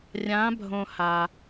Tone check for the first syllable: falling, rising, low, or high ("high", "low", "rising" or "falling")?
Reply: rising